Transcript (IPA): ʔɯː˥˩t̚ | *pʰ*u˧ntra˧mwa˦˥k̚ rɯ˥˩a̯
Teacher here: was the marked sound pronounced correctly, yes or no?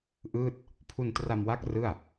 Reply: yes